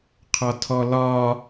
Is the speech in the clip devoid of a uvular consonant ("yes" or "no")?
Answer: no